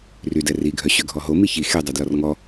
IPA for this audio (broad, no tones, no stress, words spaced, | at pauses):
rydɛ riɡʱœɕø ɡʱɔɦo miçi xedˤø dlɔrŋɔ